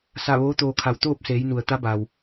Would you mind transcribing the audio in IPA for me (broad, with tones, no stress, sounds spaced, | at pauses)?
s a˧˩ ʋ oː˧˥ t̪ oː˧ kʰ a˧˩ w t̪ oː˥˨ p̚ s eː˩˧ j n u˩ ə̯ t̪ a˧˥ b aː˩ w